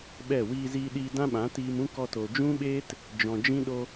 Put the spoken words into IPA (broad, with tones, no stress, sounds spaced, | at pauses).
ɓ ɛ˦˨ w iː˧ z iː˧ ɗ iː˧ d ã˦ ɓ ã˨˦ t iː˧ m ũ˦ k ɔ˧ t o˨ d͡ʒ ũ˦ ɓ eː˦ t | d͡ʒ ɔ̃˨ d͡ʒ ĩ˦ ɗ o˦